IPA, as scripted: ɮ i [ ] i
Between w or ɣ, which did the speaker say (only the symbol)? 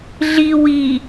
w